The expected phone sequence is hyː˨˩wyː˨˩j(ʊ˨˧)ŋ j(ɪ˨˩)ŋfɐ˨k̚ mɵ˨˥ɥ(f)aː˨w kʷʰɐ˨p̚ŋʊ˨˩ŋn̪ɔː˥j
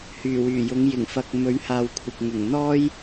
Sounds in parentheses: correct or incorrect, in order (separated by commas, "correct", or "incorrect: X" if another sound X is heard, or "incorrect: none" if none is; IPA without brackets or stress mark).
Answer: correct, correct, incorrect: h